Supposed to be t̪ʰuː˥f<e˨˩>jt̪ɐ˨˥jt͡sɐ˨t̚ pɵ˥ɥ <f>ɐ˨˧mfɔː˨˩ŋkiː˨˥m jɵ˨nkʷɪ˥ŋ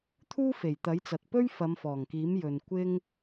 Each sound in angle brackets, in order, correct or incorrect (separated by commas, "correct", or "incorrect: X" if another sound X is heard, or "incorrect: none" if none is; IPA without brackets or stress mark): correct, correct